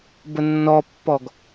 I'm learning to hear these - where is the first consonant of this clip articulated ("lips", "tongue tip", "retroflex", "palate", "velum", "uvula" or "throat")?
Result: lips